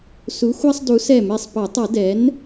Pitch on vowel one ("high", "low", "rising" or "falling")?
rising